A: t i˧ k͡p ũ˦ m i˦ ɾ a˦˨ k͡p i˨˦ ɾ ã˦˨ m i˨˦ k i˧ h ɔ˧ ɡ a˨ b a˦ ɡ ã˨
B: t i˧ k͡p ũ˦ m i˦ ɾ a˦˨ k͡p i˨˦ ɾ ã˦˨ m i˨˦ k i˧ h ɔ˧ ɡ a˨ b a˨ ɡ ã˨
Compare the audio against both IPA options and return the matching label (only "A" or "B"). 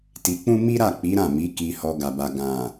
B